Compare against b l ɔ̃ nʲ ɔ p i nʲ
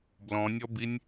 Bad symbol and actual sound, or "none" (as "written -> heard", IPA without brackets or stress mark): p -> b